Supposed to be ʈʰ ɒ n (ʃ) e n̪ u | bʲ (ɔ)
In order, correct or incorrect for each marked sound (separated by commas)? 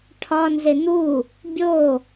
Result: incorrect, incorrect